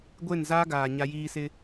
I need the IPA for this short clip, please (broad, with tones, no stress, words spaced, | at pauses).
ɡʷe˦˨nzaː˦ɡaː˨ ɲa˦jiː˦ sɪ˦